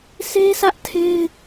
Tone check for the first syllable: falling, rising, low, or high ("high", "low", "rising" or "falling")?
high